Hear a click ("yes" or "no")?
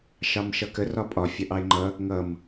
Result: yes